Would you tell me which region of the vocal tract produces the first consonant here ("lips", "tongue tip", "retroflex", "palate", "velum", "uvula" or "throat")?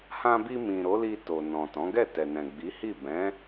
throat